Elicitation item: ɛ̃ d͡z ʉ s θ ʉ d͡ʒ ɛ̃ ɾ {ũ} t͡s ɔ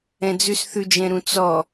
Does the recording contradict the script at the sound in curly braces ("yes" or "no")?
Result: no